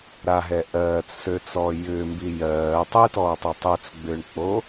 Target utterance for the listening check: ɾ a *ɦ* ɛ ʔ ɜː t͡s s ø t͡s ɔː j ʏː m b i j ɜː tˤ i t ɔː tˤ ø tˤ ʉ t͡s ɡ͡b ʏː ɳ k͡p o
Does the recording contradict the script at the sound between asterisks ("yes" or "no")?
no